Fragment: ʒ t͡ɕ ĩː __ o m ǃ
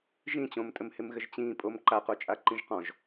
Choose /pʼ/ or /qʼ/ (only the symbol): pʼ